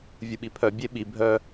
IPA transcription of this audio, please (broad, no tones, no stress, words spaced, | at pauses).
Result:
vʲuɓipʰœ bʲeɓi bʱœ